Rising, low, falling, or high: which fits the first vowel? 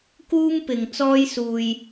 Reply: high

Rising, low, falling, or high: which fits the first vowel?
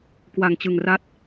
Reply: low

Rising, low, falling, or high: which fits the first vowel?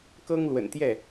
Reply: high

